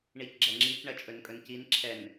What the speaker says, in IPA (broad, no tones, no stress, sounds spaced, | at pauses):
ɳ i c ɡ͡ǁ ɐ ŋ͡ǁ i c ɳ ɐ t͡ʃʼ ɵ n kʼ ɵ n c i n ǁʰ ɛ n